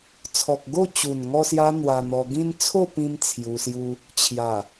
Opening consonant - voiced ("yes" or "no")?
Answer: no